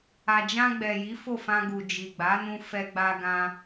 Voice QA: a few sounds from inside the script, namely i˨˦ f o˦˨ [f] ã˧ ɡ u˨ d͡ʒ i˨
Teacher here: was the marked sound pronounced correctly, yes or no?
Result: yes